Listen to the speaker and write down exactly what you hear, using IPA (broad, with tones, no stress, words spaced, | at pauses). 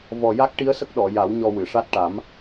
vɔ˨˩ja˦˥k̚ʈi˧˥ə̯sə˦˥k̚ ɗɔ˨˩˨ ja˨˩˦w ɲɔ˧wɨ˨˩˨ʂa˦˥t̚ ʈa˨˩˦m